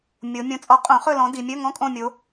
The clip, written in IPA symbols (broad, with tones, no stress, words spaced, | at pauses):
mʲo˨˦ mʲõ˨t͡sʼɔ˨˩˦ qʼõ˨˩˦χɵ˦˨lɔ̃˨˦ di˨mʲɵ˧˥˧ ŋɔ̃˧˥˧kʼõ˦˨mʲo˨˦